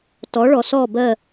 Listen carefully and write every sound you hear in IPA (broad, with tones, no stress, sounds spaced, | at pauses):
t ɔ˨˦ ɭ ɔ˨ s ɔ˦˨ b ɜ˦˨